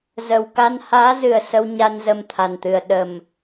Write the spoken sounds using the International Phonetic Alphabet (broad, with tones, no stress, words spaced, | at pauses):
zə˨˩wka˧n haː˨˦zɨ˨˩ə̯ sə˧wɲa˧n zə˧mt̪ʰa˨˩nt̪ɨ˨˩ə̯ ɗə˨˩m